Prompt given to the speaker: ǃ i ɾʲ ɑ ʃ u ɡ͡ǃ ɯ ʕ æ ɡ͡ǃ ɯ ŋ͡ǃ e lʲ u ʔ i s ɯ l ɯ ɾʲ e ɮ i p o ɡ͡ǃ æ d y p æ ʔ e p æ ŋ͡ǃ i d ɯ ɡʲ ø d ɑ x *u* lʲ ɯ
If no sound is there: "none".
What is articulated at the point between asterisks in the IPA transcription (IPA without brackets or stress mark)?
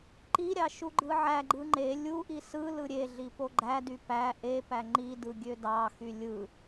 y